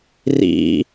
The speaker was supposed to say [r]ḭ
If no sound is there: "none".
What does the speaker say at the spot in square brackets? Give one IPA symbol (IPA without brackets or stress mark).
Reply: r